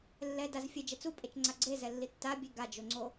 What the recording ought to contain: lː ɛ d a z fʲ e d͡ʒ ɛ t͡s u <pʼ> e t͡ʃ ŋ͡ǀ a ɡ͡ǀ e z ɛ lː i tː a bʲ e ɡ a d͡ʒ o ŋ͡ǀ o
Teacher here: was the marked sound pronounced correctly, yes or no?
yes